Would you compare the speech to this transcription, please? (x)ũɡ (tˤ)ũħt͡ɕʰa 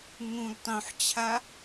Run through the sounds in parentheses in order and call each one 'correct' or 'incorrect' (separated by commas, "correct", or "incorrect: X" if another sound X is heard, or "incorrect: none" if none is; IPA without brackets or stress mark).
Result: incorrect: ŋ, correct